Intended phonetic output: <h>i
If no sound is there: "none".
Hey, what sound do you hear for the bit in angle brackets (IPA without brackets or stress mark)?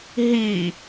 ɦ